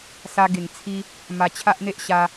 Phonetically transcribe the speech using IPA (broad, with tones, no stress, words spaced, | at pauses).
sa˦ ɡe˨˩ŋt͡sʰi˦ | ma˧t͡ɕʰa˦ʔn̪e˦ʔ ɕa˧